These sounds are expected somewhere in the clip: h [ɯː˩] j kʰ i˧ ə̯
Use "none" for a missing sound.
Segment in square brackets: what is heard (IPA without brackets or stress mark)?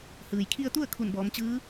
ɯː˩